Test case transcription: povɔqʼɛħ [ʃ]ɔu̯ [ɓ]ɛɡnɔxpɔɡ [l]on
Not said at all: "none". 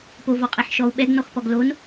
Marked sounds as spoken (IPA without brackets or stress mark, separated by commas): ʃ, ɓ, l